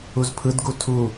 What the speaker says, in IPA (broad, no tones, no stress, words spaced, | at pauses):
uzpʰɯdɡu tʰu